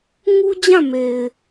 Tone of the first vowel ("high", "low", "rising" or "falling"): high